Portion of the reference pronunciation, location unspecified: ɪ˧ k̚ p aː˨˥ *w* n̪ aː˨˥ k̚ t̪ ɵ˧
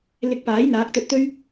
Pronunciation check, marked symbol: incorrect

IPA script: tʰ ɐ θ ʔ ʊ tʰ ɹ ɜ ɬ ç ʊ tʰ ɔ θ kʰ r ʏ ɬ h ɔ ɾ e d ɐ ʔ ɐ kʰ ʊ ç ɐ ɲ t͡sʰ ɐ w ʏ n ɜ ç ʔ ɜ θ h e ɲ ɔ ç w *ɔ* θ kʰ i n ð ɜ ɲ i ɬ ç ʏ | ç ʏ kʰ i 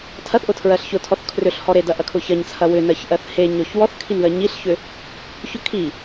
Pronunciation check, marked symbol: correct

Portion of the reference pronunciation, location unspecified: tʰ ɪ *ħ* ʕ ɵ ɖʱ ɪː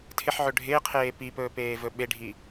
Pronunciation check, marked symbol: correct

